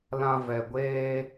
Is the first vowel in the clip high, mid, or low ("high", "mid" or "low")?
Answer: low